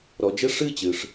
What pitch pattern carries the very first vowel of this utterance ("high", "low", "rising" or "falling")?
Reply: low